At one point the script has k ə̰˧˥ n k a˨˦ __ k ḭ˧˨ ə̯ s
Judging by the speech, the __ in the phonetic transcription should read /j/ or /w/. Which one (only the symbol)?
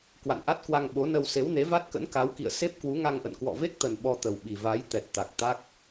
w